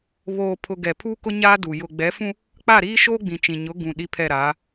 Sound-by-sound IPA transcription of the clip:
β oː˨ pʰ ʊ˨ ɡ ɛ˨ pʰ uː˦ k ʊ˦ ɲ aː˦ d u˨ j ʊ˨ ɡ͡b ɛ˨˦ f ũ˦ | k͡p a˦˨ ɾ iː˦ ʃ oː˦ ɡ͡b ĩ˨ t͡ʃ ĩ˨ ɲ ʊ˨˦ ɡ ũ˨ ɗ i˦ pʰ ɛ˦˨ ɾ aː˨˦

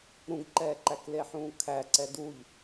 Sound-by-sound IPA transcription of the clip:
ɾ ũ ɡ ǃ ɛː ǃ æ k l e ħ ũː kʰ æ ǀ ɛ d u ʎ

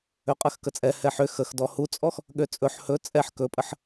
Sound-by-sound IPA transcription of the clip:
ø qʼ ɜ x k ə t͡sʼ ɛ h ɛ ħ ʏ x ə x d ɔ h u t͡sʼ ɔ x | ɠ ø t͡sʼ ɵ ħ h ɵ t͡sʼ ɛ ħ k ɵ pʼ ə ħ

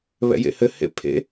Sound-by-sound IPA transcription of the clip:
β ɛ̰ j ḛ h ɘ h ḛ pʰ ḛ

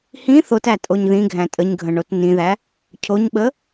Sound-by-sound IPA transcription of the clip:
h ĩ θ o t æ tʼ o ɲ ð ĩ ɡʱ æ̃ tʼ ə ɲ ɡʱ ə̃ ɳ o t n ĩ ð æ | cʰ o ɲ ɓ ə

